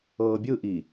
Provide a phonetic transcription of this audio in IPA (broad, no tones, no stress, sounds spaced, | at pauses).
ɤː bʲ ɯ ʔ i